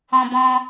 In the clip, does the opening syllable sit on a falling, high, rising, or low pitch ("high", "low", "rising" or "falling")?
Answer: high